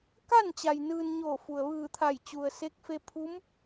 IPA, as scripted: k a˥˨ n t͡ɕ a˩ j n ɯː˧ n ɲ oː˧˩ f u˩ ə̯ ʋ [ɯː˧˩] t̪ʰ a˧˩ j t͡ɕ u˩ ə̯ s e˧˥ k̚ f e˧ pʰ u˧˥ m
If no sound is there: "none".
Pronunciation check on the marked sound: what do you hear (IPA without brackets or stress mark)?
ɯː˧˩